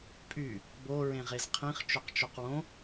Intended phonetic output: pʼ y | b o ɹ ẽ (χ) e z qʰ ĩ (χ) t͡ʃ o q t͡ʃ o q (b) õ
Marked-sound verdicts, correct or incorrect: incorrect, correct, incorrect

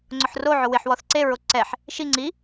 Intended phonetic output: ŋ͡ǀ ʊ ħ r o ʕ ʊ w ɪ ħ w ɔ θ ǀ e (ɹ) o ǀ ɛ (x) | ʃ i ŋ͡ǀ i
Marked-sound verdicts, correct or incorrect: correct, incorrect

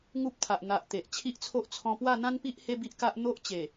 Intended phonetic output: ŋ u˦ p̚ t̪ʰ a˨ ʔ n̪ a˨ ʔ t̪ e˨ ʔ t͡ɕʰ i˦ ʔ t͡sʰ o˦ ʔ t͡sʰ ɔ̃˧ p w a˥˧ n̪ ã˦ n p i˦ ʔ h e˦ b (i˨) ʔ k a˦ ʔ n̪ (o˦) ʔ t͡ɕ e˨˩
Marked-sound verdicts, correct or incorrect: incorrect, correct

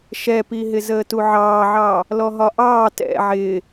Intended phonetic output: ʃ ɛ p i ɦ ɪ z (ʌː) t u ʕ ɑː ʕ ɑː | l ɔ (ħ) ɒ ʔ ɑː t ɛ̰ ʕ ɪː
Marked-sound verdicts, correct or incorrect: incorrect, incorrect

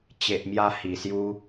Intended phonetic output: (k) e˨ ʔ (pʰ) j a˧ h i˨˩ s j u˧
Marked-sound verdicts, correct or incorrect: incorrect, incorrect

